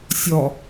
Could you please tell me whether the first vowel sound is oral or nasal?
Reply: oral